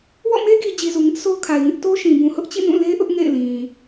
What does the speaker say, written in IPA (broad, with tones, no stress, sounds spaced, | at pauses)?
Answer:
w ɔ̰˦˨ m e˦ ɡ i˨ d͡ʑ i˨ z u˨ ŋ ɪ˦ ʔ s o˦ ʊ̯ kʰ a˨ ɪ̯ ŋ ɪ˦ ʔ t o˦ ʃ ĩ˨ b ũ˨ h ʊ˦ ʔ t͡ɕ ḭ˦˨ n ũ˦˨ l e˦ ʔ ʊ˦ ʔ ŋ ḛ˦˨ ɪ̯ l ĩ˨